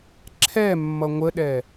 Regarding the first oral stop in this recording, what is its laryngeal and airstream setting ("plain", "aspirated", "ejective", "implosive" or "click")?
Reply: click